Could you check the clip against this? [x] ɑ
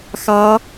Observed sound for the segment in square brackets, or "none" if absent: x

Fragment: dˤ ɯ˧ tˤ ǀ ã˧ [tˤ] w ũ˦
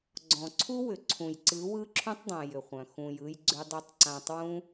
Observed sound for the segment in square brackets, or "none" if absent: tˤ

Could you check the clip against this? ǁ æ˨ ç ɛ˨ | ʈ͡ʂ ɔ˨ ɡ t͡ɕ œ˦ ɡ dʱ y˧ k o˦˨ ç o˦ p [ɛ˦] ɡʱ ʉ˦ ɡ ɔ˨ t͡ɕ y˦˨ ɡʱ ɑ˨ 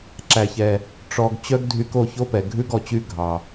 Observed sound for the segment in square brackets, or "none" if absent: ɛ˨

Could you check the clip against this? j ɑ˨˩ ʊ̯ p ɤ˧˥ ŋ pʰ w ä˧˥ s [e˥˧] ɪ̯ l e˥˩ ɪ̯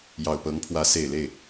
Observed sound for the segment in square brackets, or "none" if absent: e˨˩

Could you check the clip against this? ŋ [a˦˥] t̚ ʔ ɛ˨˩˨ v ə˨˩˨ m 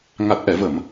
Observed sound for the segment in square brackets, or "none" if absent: a˨˩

